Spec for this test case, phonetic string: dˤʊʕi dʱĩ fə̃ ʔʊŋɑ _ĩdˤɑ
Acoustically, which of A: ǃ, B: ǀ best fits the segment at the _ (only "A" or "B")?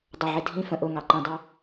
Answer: A